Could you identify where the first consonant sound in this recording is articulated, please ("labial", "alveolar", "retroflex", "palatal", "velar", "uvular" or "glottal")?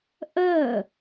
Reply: glottal